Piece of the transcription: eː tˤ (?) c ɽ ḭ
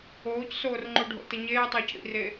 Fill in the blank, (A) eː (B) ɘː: B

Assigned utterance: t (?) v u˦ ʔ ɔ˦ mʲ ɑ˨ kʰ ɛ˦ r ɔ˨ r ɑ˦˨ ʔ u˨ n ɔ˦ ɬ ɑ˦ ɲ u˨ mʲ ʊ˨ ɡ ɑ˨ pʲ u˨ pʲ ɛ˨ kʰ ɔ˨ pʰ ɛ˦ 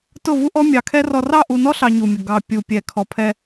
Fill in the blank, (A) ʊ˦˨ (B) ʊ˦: A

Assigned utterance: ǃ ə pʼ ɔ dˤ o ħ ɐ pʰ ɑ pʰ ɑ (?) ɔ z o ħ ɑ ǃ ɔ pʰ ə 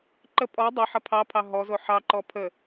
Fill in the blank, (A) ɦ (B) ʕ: A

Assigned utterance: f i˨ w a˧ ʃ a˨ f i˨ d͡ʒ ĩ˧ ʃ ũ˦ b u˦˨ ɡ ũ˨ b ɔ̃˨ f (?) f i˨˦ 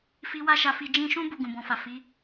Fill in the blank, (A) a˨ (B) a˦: A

